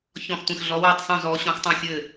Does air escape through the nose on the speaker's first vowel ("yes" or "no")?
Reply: yes